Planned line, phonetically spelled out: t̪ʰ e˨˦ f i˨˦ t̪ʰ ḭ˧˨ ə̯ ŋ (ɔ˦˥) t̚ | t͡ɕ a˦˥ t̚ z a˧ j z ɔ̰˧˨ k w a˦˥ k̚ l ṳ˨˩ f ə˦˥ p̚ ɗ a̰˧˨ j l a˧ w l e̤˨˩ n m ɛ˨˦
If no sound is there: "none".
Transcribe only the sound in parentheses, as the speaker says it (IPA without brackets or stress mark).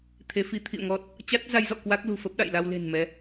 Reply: ɔ˦˥